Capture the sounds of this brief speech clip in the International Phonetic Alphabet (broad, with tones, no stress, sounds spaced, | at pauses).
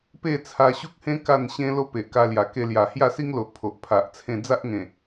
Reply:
p e˥˧ t͡sʰ a˧ ɕ u˦ k̚ h ẽ˦ k a˥˧ n ɕ ẽ˦ l o˦ p e˨ ʔ k a˧ l j a˨˩ k e˧ l j a˨˩ h j a˥˧ s i˦ ŋ l o˨ ʔ pʰ o˨ ʔ pʰ a˨ ʔ t͡sʰ ẽ˥˧ d͡z a˦ ʔ ŋ ẽ˨˩